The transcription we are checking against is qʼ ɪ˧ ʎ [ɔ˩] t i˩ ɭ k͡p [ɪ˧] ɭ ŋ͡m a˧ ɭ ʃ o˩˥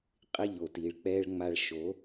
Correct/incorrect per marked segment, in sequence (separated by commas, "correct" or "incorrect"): incorrect, incorrect